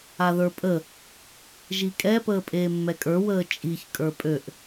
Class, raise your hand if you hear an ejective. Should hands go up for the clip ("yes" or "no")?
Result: yes